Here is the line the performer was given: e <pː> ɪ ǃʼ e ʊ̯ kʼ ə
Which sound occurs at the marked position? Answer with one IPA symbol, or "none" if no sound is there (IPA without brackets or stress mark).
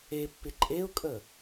pː